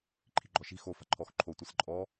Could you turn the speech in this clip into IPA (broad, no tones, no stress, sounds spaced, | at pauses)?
ǃʰ i̤ ɡ͡ǃ ɔ ʃ i̤ x o f a̤ ǃʰ ɔ x ǃʰ o tʷ ɨ s ǃʼ ɔ